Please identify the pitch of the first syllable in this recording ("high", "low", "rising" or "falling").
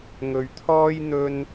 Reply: low